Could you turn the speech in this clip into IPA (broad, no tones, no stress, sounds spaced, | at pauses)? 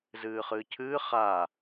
z ɨː χ ɨː cʰ ɨː χ a